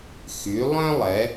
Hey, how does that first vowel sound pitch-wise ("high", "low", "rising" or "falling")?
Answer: rising